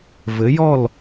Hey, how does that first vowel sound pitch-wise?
rising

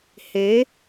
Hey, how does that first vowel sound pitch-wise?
rising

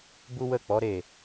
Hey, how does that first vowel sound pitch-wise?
high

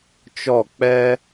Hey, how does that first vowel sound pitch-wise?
falling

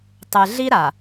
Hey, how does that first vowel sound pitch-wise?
low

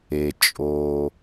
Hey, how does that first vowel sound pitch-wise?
low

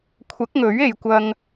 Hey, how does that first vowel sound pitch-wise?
rising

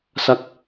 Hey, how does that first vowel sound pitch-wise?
falling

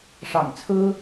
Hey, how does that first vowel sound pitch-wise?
low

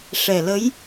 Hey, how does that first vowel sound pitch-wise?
low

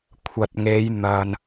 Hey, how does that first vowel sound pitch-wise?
low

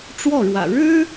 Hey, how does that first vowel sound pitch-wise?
falling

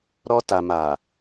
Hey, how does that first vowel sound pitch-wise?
high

